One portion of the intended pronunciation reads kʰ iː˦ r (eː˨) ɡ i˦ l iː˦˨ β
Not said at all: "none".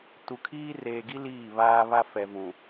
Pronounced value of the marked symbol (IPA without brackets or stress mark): eː˨